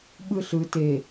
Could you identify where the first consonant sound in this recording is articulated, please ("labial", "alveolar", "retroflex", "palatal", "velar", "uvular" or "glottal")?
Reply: labial